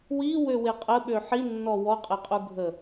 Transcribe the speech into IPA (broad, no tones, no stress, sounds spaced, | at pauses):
w i w ø w e qʼ ə ɓ ø ħ i nː ɔ w ɔ qʼ ɛ qʼ u ɡʱ ə